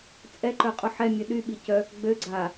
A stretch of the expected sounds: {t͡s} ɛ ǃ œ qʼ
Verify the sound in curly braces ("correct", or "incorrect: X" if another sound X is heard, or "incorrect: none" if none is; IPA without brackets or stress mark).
incorrect: t͡sʼ